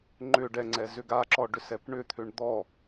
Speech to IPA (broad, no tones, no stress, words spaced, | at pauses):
ŋ͡ǃʏ ɖɛŋ͡ǀɛ zʏɡaǁɔ ɖʏsɛpɳʏt̪ʰʏɳ d̪ɔ